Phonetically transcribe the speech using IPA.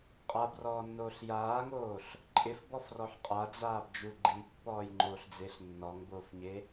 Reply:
qʼ a b r ɔː nː oː ɬ j aː ŋ oː ɬ | ǃʼ ɪ f b ɔ f r ɔ ħ qʼ a d͡z aː b d͡ʒ u ɡ͡ǃ i pː ɔː j ŋ͡ǃ oː ɬ d͡z e ɬ nː ɔ ŋ b oː f ɲ e

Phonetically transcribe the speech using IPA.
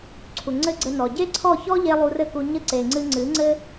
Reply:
ǀʰ u˨ ŋ͡ǀ ɘ˦ ɡ͡ǀ ɘ˧ n ɔ˨ ɟ e˦ ǀʰ ɔ˦˨ ç ɔ˦ ʎ e˧ lˠ u˧ r ɘ˦ k u˧ ɲ ɘ˦ ǀ e˨ ŋ͡ǀ ɨ˧ ŋ͡ǀ ɨ˨˦ ŋ͡ǀ ɘ˦

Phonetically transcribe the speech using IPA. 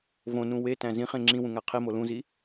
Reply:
v õ n ũ w e t æ̃ z ĩ χ ẽ ŋ͡ǁ ĩ w ũ ŋ æ qʰ i m o l ũ z i

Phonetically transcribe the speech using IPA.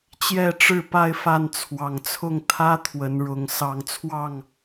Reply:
t͡ɕ j ɛ˥˨ ʈ͡ʂ ɻ̩˥˨ p a˥˨ ɪ̯ f a˥˨ n t͡sʰ w ɑ˨˩ ŋ t͡sʰ ʊ˥˨ ŋ t̪ʰ ä˦ t̪ʰ w ə˨˦ n ɻ ʊ˨˦ ŋ s ɑ˨˩ ŋ t͡sʰ w ɑ˥˨ ŋ

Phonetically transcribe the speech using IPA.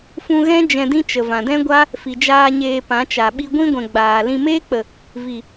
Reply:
f ũ˧ ɣ ɛ̃˦ d͡ʒ ɛ̃˧ d ĩ˦ t͡ʃ ə˨ v ã˨ d ɛ̃˦ ɡʷ a˦ | f i˨ d͡ʒ aː˧ ɲ eː˧ p ã˨˦ t͡ʃ a˨ ɓ i˦ ɡʷ ĩ˦ ɡʷ ɛ̃˨ ɡ͡b aː˨ l ĩ˧ m eː˦ k͡p ə˨ | v i˨

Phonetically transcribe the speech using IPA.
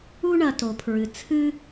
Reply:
u˥ ɳ ɐ˨ t o˩ pʰ ɹ ɨ˩ t͡sʰ ɨ˥

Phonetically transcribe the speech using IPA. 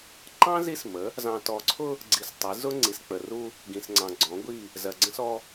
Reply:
ǃ ɑ̃˦ z i˦ s m ə˨˦ | z ɑ̃˨ t ɔ˨ ǀʰ ʊ˦ | ɡ͡ǀ i˨ s tˤ i˨˦ z ʊ˦ ŋ͡ǀ i˨ s k͡p ə˨ r u˦ | ɡ ĩ˨ s ŋ͡ǀ ɑ̃˨ ɡ͡ǀ ɔ̃˨˦ ɡʷ i˦˨ | z ɜ˨ ɡ͡ǀ ə̃˦ s ɔ˦

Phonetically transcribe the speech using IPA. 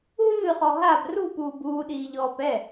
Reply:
ɦ ɨː χ ɔ ɦ a b r u p uː b uː ɗ iː ʎ ɔː p ɛ

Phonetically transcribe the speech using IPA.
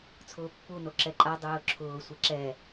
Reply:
t͡sʰ ʊː pː u n o ǁ ɛ ǃʼ a dˤ ʊː ǁʰ ʊː sʷ ɛ ǁ ɛ

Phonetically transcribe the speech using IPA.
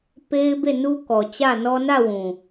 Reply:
p e˦ ɪ̯ b e˦˨ n u˦ k ɔ˨ t͡ɕ ä˦˨ n ɔ˦ n ä˦˨ w ũ˨

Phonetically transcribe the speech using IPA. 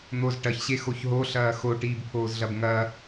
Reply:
n̪ o z ʈ ɐ ç ɕ e x o ç ɦ o ɬ ɐː x o ʈ iː b pʰ oː z ɮ ɐ b ŋ ɐ

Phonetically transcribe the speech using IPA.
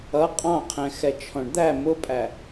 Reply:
ʌ qʼ ɑ̃ qʰ ɛ̃ x ɛ t͡ʃʰ ɔ̃ ɳ d̪ æ m ʊ pʼ æ

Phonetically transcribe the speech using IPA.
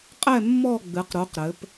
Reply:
qʼ ɛ˦˨ mː ɔ˦˨ ɡ͡b ɨ˩˧ q ɾ u˩˥ q ɾ ɘ˩˧ p

